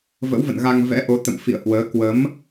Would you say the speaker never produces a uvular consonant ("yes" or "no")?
yes